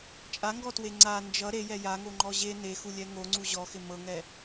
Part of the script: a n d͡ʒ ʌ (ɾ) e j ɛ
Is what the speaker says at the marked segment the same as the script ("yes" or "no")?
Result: yes